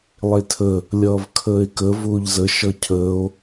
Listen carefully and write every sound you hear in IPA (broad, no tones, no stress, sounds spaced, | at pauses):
lˠ e tʰ ə | lʲ ʌː v kʰ əː e̯ k ə v ʊː ʎ z ə ʃ ʌ cʰ əː o̯